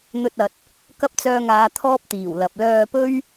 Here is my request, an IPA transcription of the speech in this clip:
n̪ ɵ˧ t̚ ɐ˨ t̚ | k ɐ˥ p̚ t͡s œː˧ ŋ aː˨˧ t̪ʰ ɔː˥ p̚ t̪ iː˨˩ w l ɐ˨ p̚ l œː˧ p ɵ˥ ɥ

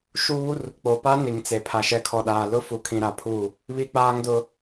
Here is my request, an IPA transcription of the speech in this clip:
ʃ uː˦ r | k͡p o˨ p a˦ n i˨ ŋ t͡s e˨ pʰ a˨ ʃ ɛ˨ kʰ ɔ˨ ɗ aː˨ l ʊ˦ f u˨ kʰ ĩ˨ ɾ a˨ pʰ u˦˨ | β i˦ k͡p aː˦ ŋ d ʊ˦

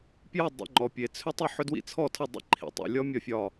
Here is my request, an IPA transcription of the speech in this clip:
p j ʌ˥˨ dˤ ḭ˨ ŋ͡ǃ ɔ˨ pʲ e˨ t͡sʰ ʏ˦˥ tˤ ʏ˥˨ ħ ʏ˦˥ d w ḭ˦˥ t͡sʰ ɔ˥˨ tʰ ʌ˥˨ dˤ ḭ˥˨ ǃʰ ḭ˨ tˤ ḭ˨ lʲ ɔ˦˥ mʲ ɒ˥˨ fʲ ɒ˥˨

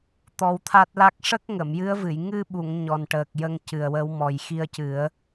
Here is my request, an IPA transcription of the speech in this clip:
t̪ ɔ˧ w t̪ʰ a˦˥ t̚ l a˦˥ k̚ ʂ ə˦˥ k̚ ŋ ə˨˩˨ m j ɨ˧˥ ə̯ v ɨ˨˩˨ j ŋ ɨ˧ ɓ u˨˩˨ ŋ ɲ ɔ˨˩ n ʈ əː˨˩ k̚ j ə˧ ŋ c ɨ˨˩ ə̯ w ə˧˥ w m ɔ˨˩ j x i˧ ə̯ c ɨ˨˩˦ ə̯

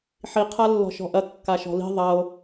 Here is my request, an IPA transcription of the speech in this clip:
ħ i qʰ a lː ɔ̤ ʃ ɔ̤ ʔ ɐ kː a ʃ ɔ̤ l i̤ ðˤ ɐ o̯

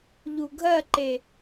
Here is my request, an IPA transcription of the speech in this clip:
ʎ u ɡʱ ɜ ǃ e

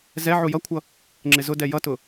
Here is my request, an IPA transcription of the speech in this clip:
z ɛ ʕ u j ʌ kʷʰ ʌ | ŋ͡ǁ ɪ z ʊ d ɛ j ʌ t ʊ

